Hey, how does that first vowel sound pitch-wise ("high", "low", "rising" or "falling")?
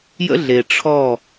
high